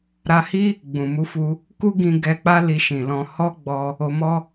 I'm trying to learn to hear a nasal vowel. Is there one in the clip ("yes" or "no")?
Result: yes